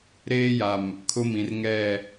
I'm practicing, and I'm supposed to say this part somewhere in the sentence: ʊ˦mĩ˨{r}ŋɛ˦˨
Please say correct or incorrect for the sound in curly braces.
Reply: correct